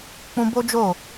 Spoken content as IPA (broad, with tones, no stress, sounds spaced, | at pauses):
k͡p ũ˧ b o˦ d͡ʒ o˦˨